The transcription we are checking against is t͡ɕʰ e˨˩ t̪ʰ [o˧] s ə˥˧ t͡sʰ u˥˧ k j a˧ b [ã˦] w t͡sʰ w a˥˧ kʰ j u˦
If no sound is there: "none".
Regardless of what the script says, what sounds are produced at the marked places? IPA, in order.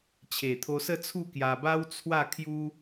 o˧, a˦

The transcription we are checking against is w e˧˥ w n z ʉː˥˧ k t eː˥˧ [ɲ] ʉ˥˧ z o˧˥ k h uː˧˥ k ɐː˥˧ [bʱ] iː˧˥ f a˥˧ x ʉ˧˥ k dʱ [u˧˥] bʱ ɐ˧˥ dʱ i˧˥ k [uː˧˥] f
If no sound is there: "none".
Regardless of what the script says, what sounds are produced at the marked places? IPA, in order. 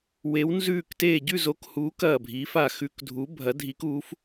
ɟ, bʱ, u˧˥, uː˧˥

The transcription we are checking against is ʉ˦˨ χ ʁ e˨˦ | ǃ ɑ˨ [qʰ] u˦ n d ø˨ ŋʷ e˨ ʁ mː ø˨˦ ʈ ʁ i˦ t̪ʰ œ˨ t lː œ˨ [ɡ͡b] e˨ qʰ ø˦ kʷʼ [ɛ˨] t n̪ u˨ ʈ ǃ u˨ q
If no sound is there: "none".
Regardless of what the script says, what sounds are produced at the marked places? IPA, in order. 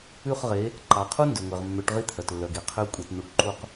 qʰ, ɡ, e˨

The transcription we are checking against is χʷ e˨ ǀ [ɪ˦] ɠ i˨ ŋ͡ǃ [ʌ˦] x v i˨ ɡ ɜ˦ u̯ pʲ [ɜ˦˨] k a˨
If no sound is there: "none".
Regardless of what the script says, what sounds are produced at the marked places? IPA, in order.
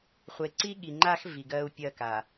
i˦, a˦, ɜ˦˨

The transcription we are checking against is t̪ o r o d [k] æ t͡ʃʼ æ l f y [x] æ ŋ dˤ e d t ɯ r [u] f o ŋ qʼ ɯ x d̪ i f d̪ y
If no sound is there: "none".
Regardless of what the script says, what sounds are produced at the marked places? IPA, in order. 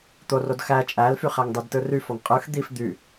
x, χ, y

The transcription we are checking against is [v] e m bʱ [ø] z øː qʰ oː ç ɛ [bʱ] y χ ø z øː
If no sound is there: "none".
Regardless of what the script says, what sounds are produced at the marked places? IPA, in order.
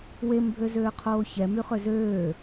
w, ø, m

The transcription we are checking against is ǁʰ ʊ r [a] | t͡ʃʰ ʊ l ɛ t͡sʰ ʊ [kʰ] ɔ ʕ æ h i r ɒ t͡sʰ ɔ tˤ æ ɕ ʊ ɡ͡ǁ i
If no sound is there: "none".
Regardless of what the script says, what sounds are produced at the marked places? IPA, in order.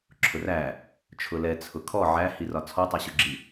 æ, kʰ

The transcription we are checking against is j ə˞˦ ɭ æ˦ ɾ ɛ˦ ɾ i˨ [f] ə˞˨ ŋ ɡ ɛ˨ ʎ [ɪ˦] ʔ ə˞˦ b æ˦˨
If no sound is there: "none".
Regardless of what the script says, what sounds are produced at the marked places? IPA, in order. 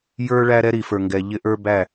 f, ɪ˦

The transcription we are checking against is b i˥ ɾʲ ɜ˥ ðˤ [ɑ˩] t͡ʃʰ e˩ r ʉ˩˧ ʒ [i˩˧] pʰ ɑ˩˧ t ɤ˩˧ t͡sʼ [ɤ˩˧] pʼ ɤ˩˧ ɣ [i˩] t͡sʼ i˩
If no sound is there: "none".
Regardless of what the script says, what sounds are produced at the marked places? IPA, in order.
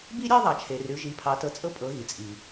ɑ˩, i˩˧, ɤ˧˥, i˩

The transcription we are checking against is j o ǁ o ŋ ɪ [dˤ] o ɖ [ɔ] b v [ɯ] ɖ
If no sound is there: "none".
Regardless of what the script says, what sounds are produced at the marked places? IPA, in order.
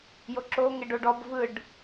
ɖ, ɔ, ɯ

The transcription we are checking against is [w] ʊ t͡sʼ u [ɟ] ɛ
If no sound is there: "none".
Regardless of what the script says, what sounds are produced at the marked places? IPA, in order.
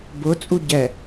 b, ɟ

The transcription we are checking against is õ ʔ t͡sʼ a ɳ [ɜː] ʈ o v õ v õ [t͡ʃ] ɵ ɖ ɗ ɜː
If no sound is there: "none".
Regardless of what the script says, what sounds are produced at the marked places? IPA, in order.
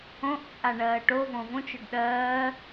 ɜː, t͡ʃ

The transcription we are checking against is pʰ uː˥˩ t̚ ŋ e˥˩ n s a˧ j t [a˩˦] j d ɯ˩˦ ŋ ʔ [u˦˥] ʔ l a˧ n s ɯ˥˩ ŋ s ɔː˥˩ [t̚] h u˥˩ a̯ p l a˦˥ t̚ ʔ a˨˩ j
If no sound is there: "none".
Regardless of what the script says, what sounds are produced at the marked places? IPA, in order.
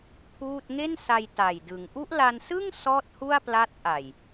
a˨˩, u˦˥, t̚

